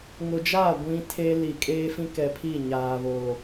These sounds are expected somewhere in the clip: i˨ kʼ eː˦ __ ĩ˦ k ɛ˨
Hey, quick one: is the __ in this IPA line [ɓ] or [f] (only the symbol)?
f